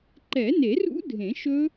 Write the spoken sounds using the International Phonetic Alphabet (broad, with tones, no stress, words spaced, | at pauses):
ǃɛ˨˩˦ne˨˩˦rṵ˦˥ dʱẽ˨˩˦ʃɵ˦˥